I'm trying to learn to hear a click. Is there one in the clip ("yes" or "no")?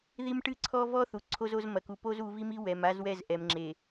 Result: yes